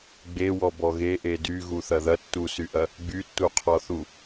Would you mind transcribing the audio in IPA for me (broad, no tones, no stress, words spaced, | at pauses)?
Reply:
ɡ͡bewɔbɔ ɣeʔe dyɣuθɐ ðɐtːusyʔɐ | ɡ͡bytːuqʰɔθu